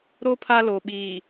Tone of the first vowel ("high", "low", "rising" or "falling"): high